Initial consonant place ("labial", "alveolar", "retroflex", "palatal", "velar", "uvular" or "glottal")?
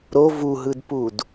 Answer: alveolar